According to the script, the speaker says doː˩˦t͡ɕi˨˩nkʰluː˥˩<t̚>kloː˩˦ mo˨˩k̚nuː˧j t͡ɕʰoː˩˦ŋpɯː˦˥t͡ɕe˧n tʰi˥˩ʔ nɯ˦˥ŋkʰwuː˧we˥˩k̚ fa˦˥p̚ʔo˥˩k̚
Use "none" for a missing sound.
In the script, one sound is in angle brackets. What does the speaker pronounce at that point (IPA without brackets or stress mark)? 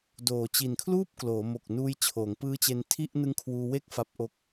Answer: p̚